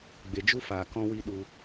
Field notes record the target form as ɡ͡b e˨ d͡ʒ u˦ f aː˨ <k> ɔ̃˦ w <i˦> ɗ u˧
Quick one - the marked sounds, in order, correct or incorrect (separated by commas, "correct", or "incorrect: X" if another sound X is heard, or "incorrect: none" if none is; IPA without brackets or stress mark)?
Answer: correct, correct